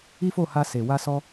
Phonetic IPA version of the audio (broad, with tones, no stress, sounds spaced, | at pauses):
i˦ f o˦˨ h a˧ s e˨ w a˧ s ɔ˧